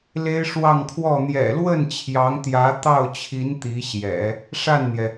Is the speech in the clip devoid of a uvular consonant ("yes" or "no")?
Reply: yes